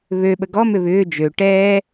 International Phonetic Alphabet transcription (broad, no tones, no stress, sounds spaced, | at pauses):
β ø ɓ ə ɡ ɔ m ʏ β ʏː d͡ʒ ø ʈ ɛː